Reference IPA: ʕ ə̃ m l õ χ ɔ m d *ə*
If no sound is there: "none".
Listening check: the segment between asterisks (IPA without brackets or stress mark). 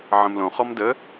ə